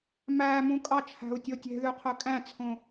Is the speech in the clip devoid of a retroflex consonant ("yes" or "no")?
yes